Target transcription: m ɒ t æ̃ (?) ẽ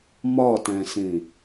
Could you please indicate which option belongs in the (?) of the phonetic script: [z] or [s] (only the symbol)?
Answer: s